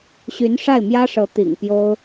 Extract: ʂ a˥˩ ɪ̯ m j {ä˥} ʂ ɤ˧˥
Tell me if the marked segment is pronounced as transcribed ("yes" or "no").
yes